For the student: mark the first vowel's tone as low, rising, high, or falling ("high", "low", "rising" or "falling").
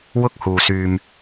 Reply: high